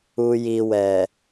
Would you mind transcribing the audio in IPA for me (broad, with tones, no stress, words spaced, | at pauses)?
u˨ji˨wɛ˨